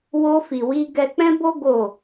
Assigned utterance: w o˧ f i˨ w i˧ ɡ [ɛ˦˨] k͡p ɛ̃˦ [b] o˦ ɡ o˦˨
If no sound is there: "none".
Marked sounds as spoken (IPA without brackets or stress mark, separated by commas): ɛ˧, b